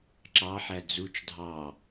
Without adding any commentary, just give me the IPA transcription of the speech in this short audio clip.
ǁɑħæ d͡zut͡ʃ dʱɑ

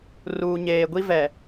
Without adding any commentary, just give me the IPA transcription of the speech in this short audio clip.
ruː˨ɲeː˨ɡʷi˦vɛ˨

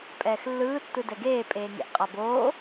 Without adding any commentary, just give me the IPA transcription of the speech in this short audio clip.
pʼɛːxlːɯː tːɯdɛɡeː pʼeːŋḛʔqʼaboː

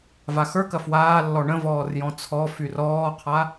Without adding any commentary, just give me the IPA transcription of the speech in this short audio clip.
vaxə˞kɐ fwaːlːɔ ɳə̃ vɔːrjɔ̃t͡sʰɔfyr ɔːqʰa

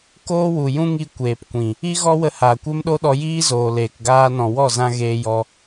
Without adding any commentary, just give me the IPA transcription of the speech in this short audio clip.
koː˦wu˨jũ˦ŋi˧ kʷeː˨pkʷĩ˨ | i˦ɣɔ˦wə˧ haː˨kʷe˦mɗo˦ɗɔ˧ jiː˦zoː˨leː˨kɡaː˧ nɔ̃˨ wɔ˦˨zã˧ ɣeː˧jɔ˧

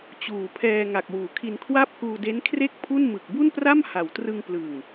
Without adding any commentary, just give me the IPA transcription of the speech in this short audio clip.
t͡ɕuː˨˩pʰɛː˧ ŋa˨˩k̚wuː˩˦kʰi˧n kʰwa˥˩p̚kuː˧ de˦˥n kʰre˥˩k̚pʰu˥˩n mɯ˨˩k̚ bu˥˩npra˥˩mha˩˦w trɯ˧ŋplɯ˨˩ŋ

